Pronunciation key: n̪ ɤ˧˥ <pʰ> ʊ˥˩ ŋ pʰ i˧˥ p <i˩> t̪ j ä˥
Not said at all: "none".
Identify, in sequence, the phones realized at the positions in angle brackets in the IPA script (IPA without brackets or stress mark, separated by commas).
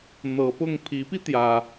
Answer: p, i˧